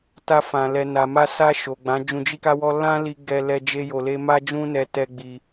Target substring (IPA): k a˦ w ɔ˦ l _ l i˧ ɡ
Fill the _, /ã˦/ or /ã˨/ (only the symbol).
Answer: ã˦